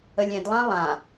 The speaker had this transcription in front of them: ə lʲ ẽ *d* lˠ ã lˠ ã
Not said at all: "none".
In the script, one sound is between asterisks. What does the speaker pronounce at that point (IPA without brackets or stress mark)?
d